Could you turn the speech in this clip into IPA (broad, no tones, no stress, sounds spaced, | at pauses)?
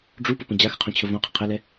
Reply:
ɖ͡ʐ u p ə p ə̃ d͡ʑ a x ə qʰ ũ t͡ɕʰ ə v õ qʰ ə̃ qʰ ə l ɛ